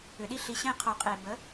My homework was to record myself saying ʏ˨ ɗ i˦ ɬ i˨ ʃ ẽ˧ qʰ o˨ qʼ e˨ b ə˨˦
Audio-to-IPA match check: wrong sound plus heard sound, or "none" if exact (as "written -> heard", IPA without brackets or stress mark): ʃ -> ɕ